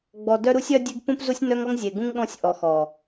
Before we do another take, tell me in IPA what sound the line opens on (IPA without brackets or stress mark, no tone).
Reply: ɡ͡b